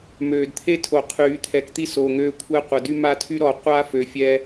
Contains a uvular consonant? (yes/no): yes